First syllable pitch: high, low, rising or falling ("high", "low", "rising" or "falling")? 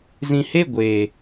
low